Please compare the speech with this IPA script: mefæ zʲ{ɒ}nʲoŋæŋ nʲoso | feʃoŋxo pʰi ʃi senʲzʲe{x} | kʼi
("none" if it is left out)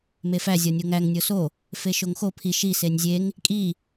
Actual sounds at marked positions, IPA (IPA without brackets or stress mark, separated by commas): ɒ, ŋ